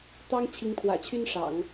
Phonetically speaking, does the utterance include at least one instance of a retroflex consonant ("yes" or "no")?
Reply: yes